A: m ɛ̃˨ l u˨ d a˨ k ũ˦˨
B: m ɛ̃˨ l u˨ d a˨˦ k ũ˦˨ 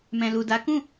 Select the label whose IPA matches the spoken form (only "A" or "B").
B